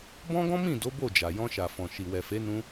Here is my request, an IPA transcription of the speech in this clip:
b ɔ̃˦ ɡ ɔ̃˦ m ĩ˦˨ d o˨˦ b o˦˨ d͡ʒ a˨ j ɔ̃˧ ʃ a˨ f ɔ̃˨ ʃ i˨ w ɛ˨ f e˨˦ n ũ˧

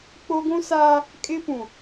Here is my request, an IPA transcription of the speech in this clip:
k͡p o˦ ɡʷ ũ˦ s aː˦ | kʼ ɪ˦ p ũ˨

